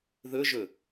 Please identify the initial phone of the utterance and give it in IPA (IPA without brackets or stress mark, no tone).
ð